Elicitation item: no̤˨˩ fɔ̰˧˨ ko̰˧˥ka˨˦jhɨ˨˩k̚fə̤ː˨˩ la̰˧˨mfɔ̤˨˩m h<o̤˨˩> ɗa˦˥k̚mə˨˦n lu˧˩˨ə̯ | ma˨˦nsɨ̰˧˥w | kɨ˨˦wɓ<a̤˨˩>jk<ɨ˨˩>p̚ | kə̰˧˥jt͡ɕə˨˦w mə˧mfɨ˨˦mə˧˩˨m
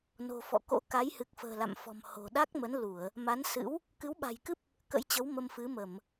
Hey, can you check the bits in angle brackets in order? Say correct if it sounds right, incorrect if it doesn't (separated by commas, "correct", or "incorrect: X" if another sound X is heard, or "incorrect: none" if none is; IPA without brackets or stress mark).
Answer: correct, correct, incorrect: ɨ˦˥